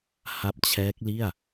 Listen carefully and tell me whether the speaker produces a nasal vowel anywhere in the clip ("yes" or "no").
no